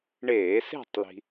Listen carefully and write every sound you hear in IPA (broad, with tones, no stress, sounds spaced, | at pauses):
ɳ eː˧˩˧ s e̤˥˨ tˤ l i̤˧